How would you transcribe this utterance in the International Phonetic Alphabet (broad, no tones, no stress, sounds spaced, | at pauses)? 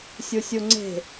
sʲ u sʲ u ŋ͡ǀ e̤